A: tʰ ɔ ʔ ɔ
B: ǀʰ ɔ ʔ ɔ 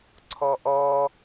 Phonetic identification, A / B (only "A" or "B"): B